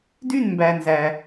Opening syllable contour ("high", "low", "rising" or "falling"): falling